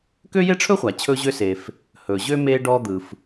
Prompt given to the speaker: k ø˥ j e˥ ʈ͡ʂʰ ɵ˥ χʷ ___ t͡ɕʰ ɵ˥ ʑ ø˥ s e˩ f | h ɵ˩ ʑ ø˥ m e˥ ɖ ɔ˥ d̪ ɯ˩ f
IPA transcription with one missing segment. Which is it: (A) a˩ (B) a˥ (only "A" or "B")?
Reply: A